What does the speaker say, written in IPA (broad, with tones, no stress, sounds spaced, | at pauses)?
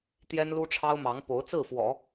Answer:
t̪ j ɛ˥ n l u˥ ʈ͡ʂʰ ɑ˥ ʊ̯ m ɑ˧˥ ŋ p o˧˥ ʊ̯ t͡s ɹ̩˥˩ f w ɔ̰˨˩˦